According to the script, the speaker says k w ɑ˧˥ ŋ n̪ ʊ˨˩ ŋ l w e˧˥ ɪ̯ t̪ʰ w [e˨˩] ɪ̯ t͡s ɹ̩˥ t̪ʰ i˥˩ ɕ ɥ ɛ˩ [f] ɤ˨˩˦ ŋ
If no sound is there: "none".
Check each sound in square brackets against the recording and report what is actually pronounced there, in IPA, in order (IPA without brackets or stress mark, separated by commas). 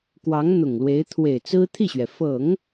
e˨˩, f